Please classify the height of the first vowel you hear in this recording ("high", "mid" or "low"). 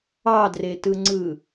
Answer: low